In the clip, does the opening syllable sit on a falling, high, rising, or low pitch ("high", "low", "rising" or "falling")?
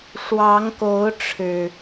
rising